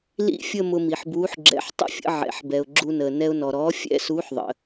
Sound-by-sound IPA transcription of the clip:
l ḭ˥˧ fʲ ə˥˧ m ʊ˧ m i˩ ħ b uː˨˥ ħ ɡ͡ǁ ɛ̰˨˥ ħ tˤ ə̰˥˧ fʲ ə̰˧ ʕ ɛ̰˩ ħ b ɛ˩ ʊ̯ ɡ͡ǁ u˧ n əː˩ n ɛ˧ ʊ̯ n ɔ˩ ɾ ɔː˨˥ fʲ ɛ̰˥˧ s uː˨˥ ħ ðˤ ə̰˩

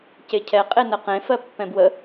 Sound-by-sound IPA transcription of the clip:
c e cʰ ɛ qʼ e n ə q ẽ f ɜ pː ɛ̃ b w ə

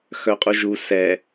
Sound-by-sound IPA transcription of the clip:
x œ qʼ u ʒ u s ɛ

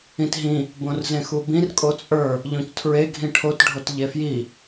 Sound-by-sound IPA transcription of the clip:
ĩ t ɦ ĩ | b õ r z ẽ x u b ĩ r kʼ o t͡sʼ ə˞ | ʎ õ c tʰ ɹ e ɡʱ ĩ ʈʰ o t ɖʱ o t ʎ e f j i

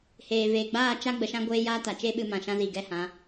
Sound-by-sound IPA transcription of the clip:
h eː˨ v eː˨ ɡ͡b aː˦˨ t͡ʃ a˦ ɡ͡b ə˧ ʃ ã˦ ɡʷ eː˦ j aː˦ t a˨ t͡ʃ e˦ ɓ ɨ˧ m ã˨ ʃ ã˦ z iː˨ ɡ ɛ˦ h ã˨˦

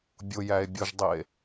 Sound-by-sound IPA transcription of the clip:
bʲ ʊ j æ e̯ bʲ ʊ ʒ dˤ i e̯

